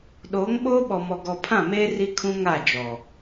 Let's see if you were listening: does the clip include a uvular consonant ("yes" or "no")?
no